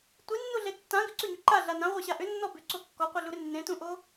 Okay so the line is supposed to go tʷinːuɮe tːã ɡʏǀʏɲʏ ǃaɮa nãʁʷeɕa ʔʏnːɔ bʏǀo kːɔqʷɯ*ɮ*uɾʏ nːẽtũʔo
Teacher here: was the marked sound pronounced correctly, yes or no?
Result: yes